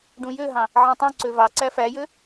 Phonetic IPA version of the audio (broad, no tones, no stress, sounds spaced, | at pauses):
ɖ ũ j ø ɦ ɑ̃ | ʕ æ̃ tˤ ũ ǀ ø v ɑ ǀ æ f æ j ø